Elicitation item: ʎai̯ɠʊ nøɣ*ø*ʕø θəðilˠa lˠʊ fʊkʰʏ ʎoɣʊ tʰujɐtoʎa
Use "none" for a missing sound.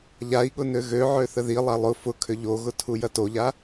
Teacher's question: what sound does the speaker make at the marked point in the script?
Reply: ø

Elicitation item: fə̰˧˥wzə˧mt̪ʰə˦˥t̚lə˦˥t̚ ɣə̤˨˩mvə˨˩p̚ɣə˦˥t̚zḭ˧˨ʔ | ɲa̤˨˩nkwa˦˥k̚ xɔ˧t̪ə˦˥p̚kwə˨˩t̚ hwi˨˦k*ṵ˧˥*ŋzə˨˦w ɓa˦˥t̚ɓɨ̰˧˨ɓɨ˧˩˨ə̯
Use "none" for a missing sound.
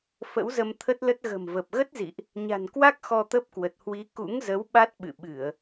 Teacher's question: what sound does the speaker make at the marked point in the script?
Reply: ṵ˧˥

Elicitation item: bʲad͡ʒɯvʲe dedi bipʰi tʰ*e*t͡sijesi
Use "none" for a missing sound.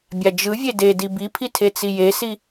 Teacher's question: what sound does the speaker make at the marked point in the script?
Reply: e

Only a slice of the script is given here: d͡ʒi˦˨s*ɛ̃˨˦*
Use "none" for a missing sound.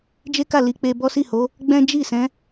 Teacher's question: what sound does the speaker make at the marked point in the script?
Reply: ɛ̃˨˦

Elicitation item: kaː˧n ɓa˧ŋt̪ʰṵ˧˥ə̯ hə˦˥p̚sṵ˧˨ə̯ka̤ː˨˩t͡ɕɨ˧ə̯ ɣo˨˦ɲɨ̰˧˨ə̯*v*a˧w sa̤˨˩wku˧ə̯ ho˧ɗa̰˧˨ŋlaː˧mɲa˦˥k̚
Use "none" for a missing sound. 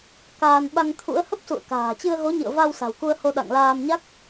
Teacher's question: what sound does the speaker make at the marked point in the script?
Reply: v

